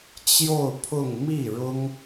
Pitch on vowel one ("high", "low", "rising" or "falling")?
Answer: falling